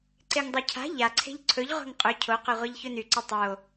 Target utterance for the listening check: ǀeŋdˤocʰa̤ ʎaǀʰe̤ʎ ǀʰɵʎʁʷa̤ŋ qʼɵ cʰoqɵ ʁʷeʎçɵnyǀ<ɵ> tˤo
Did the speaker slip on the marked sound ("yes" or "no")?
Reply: no